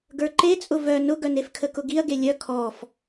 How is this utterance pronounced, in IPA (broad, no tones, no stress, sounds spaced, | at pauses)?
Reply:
ɡ ə˞ ǃ e t͡sʼ ʊ v œ n ʊ ɡ œ n e f kʰ ə k ʊ ɡ i ɐ̯ ɡ e lʲ œ kʰ ɔ f